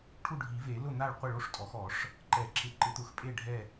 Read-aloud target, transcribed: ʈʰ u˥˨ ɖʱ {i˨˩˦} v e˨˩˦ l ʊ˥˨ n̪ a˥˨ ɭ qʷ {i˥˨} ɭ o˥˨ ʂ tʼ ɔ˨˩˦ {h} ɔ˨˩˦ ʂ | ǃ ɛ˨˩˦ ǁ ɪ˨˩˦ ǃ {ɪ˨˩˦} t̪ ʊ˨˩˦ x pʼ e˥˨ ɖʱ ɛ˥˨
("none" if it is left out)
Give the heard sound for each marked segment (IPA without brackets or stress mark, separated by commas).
i˨˩˦, ɪ˥˨, x, ɪ˨˩˦